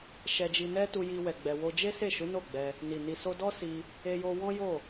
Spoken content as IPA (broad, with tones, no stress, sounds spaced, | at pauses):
ʃ ɛ˧ d͡ʒ i˧ n ɛ˦ t u˦ j i˦ w ɛ˧ ɡ͡b ɛ˧ w o˧ d͡ʒ e˦ s e˦˨ ʃ u˨˦ n o˦˨ ɡ͡b ɛ˧ | n i˨ n i˧ s o˦ d ɔ˦ s i˧ | e˧ j o˧ w ɔ̃˦ j o˦˨